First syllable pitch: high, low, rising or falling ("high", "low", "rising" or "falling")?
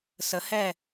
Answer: rising